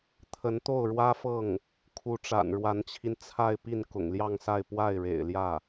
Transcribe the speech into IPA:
t̪ʰ ə˧˥ n t̪ o˥˩ ʊ̯ ɻ w ä˥ f ɤ˥˩ ŋ | kʰ u˧˥ ʈ͡ʂ a̰˨˩ n ɻ w a˧˥ n t͡ɕʰ i˧ n t͡sʰ a˥˧ ɪ̯ p i˥˩ n k ʊ̰˨˩ ŋ l j ɑ˥˧ ŋ s a˥˧ ɪ̯ p w a˥˩ ɪ̯ ɻ ḛ˨˩ ɪ̯ l j ä˥˩

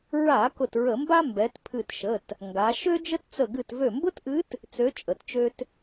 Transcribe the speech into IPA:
ɹ a˧˩˧ k ʊ˧˩ t ɹ ə˧˩˧ m b a˥ m b ɛ˩˧ t pʰ ɨ˧˩ t ʃ ə˩˧˩ t | ŋ ɡ a˩˧ ʃ ø˥ d͡ʒ ə˥ t t͡s ə˧˩ ɡ ɨ˧˩ t v ø˧˩ m b ʊ˥ t ʔ ɨ˧˥ t | t͡s ø˧˥ t͡ʃʼ ə˧˩˧ t t͡ʃ ø˥ t

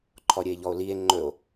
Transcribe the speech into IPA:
ǃʰ ɔ ɾʲ ə e̯ ʎ ɔ o̯ l i e̯ ŋ͡ǃ ɵ o̯

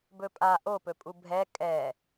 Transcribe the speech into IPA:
b ɵ pʼ a ʔ o p ɵ pʼ u bʱ ɛ kʼ ɛ

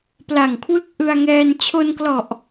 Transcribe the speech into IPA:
p l a˨˩ ŋ kʰ w ɯ˦˥ k̚ ʔ ɯ˧ a̯ ŋ ɛː˧ n t͡ɕʰ o˧ n k l ɔ˨˩ ʔ

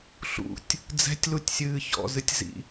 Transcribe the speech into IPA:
ɬ ṵ tʲ | d͡z ɛ̤ tʲ l u tʲ sʲ ɨː ç ɔ̰ z ɨ tʲ z ḭ

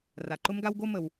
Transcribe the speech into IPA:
r a˨ ǃ ʊ˦ m ɡ a˦ w ɡ o˦ m ə˨ w

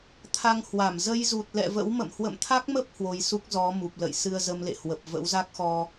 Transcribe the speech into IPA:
t̪ʰ a˧ ŋ h w a˧˩ m z ə˧ j z u˨˩ t̚ l ɛ̰˧˨ v ə̰˧˥ w m ə̰˧˨ m h w ə̰˧˨ m t̪ʰ a˦˥ k̚ m ə˦˥ p̚ h w o˧ j s u˦˥ k̚ z ɔ˨˦ m u˨˩ p̚ l ə̰˧˨ j s ɨ˧ ə̯ z ə˧ m l ḛ˧˨ h w ə˨˩ p̚ v ə̰˧˥ w z a˦˥ k̚ x ɔ˧

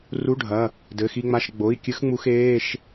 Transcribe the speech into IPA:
r u˧˥˧ ɖʱ ɐ˩˧˩ | d ɘ˩˧˩ x i˧ ŋ͡m a˧ ʃ ɡ͡b o˩˧˩ i̯ kʲ ɨ˧˥ x ŋ͡m u˧ x eː˧˥˧ ʃ

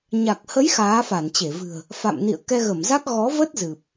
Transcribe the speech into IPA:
ɲ a˨˩ k̚ h ə˨˦ j x aː˨˦ f a˧˩ n t͡ɕ e˧˩ v ɨ̤˨˩ ə̯ | f a̰˧˨ m n ḭ˧˨ ə̯ k ɛ˧ ɣ ə˧˩ m z a˦˥ k̚ ɣ ɔ˨˦ v ə˦˥ t̚ z ɨ˨˩ p̚

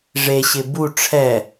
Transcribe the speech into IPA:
ʐ e ɕ ɪ b u ʈ͡ʂʰ ɛ

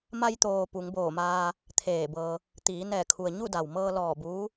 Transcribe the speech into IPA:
m a˧ j t̪ oː˩ p u˩˧ ŋ b oː˧˩ m aː˧ | t̪ʰ eː˧˩ b ɤː˧ | t̪ iː˩˧ n ɛː˧˩ kʰ u˩ ə̯ ɲ u˥˨ d a˩ w m ɤː˧ l ɔː˧˩ b uː˧˥

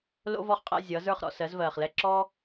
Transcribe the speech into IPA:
l o̰˥ v ɔ˥˨ χ qʼ ɛ̰˥˨ zʲ ʌ˩˥ z ə˞˥˨ χ ɾ ɔ̰˥˨ s ɜ˩˥ z v ɜː˨˩ χ l ɛ˥˨ ǁ ɔ˥

